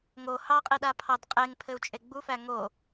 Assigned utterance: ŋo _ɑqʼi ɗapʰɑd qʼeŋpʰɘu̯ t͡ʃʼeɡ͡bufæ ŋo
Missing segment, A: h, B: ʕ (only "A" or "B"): A